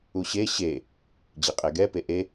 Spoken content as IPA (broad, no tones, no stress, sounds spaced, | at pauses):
u ɕ e ɕ e | d͡ʑ i qʼ e ɡ ɛ p e ʔ e